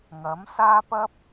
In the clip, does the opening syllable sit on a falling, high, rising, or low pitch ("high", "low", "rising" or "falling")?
rising